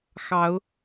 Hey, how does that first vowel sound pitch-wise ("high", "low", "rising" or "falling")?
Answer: rising